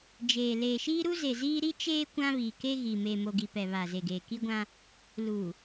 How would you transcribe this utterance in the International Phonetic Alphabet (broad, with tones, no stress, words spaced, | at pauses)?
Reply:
d͡ʒeː˨ leː˨ʃiː˦ɾu˦ze˨ ziː˦ ɾi˦t͡ʃeː˦ kʷã˦βiː˨ke˦ ɣi˨ meː˨mo˨ɡi˨ pɛ˨ βa˨ze˨ɡeː˨ ki˦ɡʷã˦ | luː˨